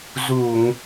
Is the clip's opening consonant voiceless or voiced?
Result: voiced